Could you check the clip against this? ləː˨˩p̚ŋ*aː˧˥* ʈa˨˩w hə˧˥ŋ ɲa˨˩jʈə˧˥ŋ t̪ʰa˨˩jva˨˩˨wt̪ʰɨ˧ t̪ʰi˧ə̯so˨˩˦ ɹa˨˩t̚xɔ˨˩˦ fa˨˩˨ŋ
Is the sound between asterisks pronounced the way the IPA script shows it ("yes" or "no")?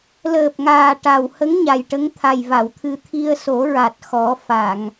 no